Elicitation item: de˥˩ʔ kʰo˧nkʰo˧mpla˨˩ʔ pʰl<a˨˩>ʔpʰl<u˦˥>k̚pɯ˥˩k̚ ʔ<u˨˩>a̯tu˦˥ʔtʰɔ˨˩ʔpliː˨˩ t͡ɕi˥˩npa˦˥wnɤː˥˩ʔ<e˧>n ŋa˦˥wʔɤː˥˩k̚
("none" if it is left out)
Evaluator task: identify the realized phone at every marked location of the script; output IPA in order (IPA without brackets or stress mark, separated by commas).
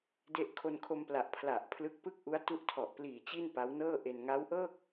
a˨˩, ɯ˦˥, u˦˥, e˧